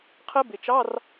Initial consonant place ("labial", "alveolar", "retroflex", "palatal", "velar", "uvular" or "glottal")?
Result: uvular